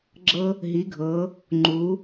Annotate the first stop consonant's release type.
click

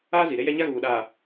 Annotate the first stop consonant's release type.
implosive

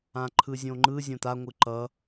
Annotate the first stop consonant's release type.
click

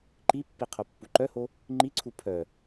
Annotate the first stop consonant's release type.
click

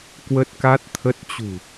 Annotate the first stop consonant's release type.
plain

